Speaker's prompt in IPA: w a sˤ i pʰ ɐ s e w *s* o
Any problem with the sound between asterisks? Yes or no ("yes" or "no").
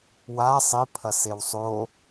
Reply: yes